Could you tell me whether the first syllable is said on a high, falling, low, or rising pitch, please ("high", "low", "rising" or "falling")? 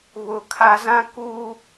low